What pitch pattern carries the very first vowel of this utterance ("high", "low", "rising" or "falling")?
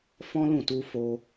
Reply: high